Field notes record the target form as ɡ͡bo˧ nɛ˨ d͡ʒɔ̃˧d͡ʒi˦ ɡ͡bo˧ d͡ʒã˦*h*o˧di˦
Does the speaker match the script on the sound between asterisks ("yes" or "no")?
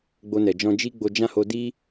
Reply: yes